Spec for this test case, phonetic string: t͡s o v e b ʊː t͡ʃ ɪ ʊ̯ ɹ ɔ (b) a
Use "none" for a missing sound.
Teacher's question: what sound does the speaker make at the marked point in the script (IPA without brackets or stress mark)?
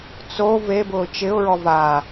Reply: v